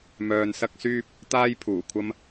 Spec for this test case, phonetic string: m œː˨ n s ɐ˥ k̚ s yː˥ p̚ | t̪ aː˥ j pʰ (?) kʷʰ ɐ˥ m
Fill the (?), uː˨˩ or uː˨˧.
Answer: uː˨˩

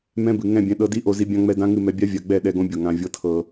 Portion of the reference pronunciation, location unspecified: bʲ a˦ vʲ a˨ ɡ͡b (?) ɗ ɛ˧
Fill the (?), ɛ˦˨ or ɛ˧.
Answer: ɛ˦˨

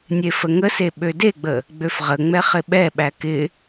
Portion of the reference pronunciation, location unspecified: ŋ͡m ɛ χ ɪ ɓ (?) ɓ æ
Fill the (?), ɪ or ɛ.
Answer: ɛ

